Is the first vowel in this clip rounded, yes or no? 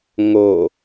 yes